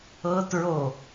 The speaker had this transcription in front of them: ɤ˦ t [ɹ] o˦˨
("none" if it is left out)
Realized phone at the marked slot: ɹ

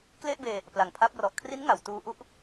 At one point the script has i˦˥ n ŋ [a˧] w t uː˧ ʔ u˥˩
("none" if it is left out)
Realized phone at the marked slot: a˩˦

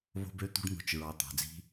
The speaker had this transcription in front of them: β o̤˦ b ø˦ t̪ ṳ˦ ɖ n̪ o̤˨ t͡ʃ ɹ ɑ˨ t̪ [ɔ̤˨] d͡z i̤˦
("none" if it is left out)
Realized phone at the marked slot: ɑ̤˨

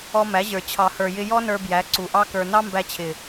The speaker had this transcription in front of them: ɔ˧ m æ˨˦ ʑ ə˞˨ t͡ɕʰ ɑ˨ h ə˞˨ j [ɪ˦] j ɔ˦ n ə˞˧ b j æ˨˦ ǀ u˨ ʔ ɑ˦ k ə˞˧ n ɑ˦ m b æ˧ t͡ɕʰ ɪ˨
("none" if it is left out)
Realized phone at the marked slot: ɪ˧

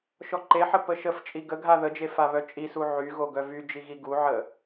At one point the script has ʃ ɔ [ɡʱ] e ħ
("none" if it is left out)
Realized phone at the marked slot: ǃ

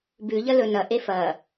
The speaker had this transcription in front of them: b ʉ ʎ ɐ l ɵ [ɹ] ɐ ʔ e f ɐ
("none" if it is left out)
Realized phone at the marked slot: n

